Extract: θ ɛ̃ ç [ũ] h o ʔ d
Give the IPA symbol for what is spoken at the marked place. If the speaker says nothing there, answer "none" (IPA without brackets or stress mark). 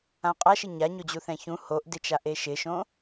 ũ